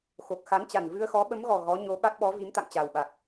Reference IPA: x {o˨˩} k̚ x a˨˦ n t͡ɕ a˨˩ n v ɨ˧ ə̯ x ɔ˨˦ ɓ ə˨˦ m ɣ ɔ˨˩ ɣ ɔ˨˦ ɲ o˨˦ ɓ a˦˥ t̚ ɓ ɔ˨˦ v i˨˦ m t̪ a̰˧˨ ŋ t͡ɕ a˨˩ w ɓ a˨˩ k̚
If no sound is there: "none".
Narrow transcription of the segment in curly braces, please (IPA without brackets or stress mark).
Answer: o˨˩